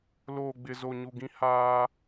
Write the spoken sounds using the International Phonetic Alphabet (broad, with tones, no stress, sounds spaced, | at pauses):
l oː˨ ɡ͡b ɪ˨ z o˨ ɲ u˨ ɡ ĩ˦ h aː˦